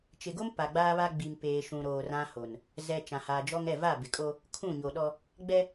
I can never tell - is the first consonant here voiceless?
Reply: yes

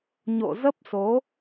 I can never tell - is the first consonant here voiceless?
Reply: no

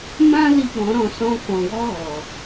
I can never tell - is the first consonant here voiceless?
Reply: no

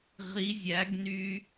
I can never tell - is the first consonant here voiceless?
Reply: no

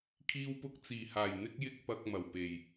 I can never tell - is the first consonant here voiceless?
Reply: yes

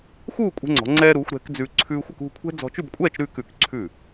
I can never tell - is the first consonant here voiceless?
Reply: yes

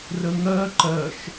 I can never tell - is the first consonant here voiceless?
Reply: no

